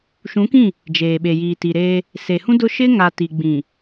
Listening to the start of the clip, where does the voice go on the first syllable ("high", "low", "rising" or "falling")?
rising